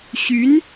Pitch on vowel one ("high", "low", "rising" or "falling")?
rising